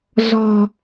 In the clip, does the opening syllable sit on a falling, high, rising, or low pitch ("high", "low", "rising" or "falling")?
low